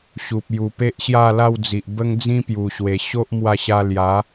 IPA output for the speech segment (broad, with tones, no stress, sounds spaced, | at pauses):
ɕ u˨ p̚ j u˨˩ p e˦ ʔ ɕ j a˥˧ l a˥˧ w d͡z i˨ ʔ b ə˦ ŋ d͡z ĩ˦ p j u˨˩ ɕ w e˨˩ ɕ o˦ ʔ m w a˧ ɕ a˧ l j a˨˦